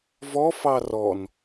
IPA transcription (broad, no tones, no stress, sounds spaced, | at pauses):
v ɔ f ɑ r ɔ n